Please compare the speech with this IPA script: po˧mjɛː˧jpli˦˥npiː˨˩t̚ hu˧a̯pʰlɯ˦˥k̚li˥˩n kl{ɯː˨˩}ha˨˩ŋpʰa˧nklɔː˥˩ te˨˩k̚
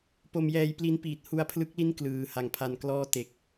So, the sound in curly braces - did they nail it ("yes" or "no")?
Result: yes